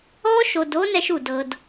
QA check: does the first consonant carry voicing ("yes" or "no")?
no